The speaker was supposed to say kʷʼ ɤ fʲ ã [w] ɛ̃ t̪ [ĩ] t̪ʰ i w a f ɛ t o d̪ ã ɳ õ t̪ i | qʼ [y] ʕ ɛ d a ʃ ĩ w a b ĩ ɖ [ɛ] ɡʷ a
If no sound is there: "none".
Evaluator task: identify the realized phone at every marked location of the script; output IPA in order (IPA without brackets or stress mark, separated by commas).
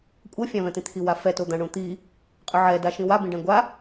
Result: v, ĩ, y, ɛ̃